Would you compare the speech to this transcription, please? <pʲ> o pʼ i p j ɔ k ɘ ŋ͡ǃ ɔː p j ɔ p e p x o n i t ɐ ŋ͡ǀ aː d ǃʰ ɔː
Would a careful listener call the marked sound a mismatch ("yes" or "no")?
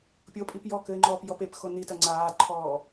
no